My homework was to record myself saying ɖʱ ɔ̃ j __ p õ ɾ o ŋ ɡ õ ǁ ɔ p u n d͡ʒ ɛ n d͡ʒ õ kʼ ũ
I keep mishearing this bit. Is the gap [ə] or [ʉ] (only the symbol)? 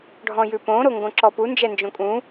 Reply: ʉ